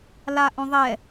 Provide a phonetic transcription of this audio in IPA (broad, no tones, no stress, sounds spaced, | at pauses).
l a ʔ õ ðˤ ɛ